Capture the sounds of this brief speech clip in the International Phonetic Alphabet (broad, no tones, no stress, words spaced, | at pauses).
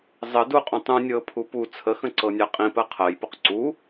zˤə duqʼũ tˤũ nʲɤpʰu pu t͡sʰəxə̃ ǀɤnʲaqʼĩpɜ qʰɜjpʊq ǀu